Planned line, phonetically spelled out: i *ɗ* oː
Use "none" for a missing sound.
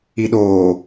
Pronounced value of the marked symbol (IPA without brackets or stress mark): ɗ